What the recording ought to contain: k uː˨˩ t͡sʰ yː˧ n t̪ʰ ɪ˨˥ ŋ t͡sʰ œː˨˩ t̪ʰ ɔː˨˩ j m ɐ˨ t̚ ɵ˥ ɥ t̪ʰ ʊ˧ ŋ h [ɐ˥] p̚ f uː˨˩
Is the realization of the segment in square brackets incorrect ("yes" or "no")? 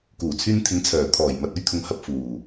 yes